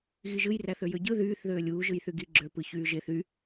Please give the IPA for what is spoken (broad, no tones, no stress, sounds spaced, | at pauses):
ɣ i ʒ ɯ j r æ θ ø j ø ɟ ɯ ð yː θ ð øː lʲ uː ʒ ɯ j θ y ɡ i ɡ͡ǁ ø p ɯ ç yː ʒ e θ y